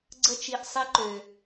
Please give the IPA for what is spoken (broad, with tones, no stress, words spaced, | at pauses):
ɡ͡ǀə˦t͡ʃi˧ʔ sˤi˦ǃø˧